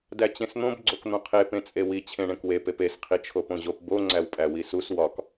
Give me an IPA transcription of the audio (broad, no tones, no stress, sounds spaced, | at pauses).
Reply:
d æ t͡ɕ ẽ s n̪ õ b ɡ͡ǀ o k n̪ õ qʰ e p ẽ t͡sʼ e w i t͡ɕʰ ẽ ɳ ẽ k w e p e p e s qʰ i t͡ʃʰ o p õ ʑ o p b o ŋ͡ǀ æ w pʼ æ w i s u s w ɒ k